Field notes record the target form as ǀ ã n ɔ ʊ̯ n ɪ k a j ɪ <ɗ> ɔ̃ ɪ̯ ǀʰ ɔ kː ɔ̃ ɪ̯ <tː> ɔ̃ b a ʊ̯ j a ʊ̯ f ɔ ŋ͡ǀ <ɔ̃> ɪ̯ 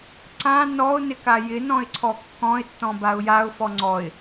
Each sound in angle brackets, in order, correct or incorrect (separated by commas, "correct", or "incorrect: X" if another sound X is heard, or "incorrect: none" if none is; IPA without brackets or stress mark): incorrect: n, correct, incorrect: ɔ